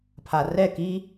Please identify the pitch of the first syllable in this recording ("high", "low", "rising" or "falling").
low